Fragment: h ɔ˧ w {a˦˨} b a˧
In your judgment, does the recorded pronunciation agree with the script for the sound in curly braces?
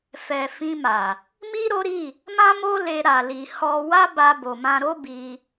no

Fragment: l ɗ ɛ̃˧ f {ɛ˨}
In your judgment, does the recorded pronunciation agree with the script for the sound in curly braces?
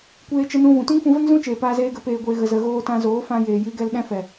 yes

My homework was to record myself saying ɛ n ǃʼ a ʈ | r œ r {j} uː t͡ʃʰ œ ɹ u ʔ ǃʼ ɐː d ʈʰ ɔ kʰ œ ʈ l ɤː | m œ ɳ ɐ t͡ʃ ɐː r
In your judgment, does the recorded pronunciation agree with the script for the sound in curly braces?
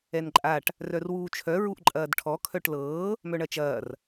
no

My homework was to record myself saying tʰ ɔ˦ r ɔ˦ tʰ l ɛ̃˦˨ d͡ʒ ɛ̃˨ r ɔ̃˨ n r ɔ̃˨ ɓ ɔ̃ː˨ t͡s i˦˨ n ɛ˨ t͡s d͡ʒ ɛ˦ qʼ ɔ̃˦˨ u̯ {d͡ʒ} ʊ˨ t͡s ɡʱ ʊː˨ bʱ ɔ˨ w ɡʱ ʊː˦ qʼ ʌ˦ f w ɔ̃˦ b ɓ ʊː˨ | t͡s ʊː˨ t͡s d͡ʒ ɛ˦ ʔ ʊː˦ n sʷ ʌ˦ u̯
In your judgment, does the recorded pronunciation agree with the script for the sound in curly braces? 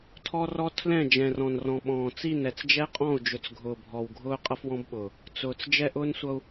yes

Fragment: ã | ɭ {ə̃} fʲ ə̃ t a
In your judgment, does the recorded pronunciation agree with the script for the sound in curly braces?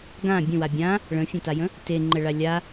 yes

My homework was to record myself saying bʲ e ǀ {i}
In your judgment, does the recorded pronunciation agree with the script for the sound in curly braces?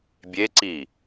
yes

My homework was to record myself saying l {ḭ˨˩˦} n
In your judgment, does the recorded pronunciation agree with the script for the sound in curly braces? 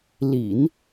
yes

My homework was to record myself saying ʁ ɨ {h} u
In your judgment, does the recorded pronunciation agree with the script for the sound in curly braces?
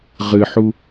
no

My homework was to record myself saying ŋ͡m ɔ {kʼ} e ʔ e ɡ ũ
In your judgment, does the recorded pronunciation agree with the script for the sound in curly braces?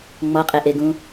no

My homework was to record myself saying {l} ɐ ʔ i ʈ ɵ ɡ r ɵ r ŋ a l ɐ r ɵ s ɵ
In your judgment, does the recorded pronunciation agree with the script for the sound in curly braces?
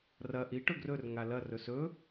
no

